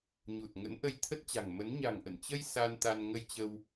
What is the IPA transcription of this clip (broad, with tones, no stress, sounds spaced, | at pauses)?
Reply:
ɲ u˨˩ t̚ ŋ ə̰˧˥ n ʔ ə˧ j t̪ʰ ə˦˥ t̚ t͡ɕ a̤˨˩ ŋ m ə˨˦ n ɲ a̤˨˩ ŋ ʔ ə̰˧˨ n t͡ɕ ə˧ j s a˧ n t̪ a˧ n ŋ ə˧ j t͡ɕ ə˧ w